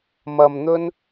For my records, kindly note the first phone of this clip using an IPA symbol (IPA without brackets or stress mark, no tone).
m